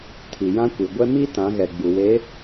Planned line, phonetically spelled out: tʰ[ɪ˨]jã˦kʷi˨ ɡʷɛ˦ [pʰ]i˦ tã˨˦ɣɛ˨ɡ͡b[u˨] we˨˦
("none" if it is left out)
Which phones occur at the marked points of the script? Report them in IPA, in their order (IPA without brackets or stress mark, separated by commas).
i˨, m, u˨